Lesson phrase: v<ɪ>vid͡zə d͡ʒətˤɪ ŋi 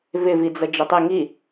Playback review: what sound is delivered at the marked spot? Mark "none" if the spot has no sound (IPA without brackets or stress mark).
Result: ɪ